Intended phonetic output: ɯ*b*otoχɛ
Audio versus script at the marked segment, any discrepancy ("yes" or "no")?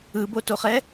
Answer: no